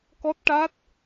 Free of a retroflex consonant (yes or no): no